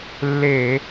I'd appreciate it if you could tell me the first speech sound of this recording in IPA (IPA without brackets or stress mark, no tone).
lː